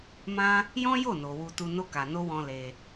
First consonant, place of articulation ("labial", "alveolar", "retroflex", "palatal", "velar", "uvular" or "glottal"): labial